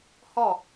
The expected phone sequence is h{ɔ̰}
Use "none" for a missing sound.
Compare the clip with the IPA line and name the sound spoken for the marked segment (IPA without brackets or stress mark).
ɔ